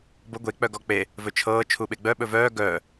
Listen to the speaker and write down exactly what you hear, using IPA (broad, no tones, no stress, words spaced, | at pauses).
bɤ ɡʷe k͡pœɡɔk͡pe | vɵt͡ʃʰɤː t͡ʃʰuɓeɡ͡bœ ɓɵvœː ɡœː